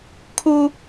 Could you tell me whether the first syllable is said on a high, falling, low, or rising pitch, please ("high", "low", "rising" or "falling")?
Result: high